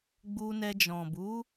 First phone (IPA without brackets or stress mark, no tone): ɡ͡b